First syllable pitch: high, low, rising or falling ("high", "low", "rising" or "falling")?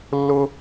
high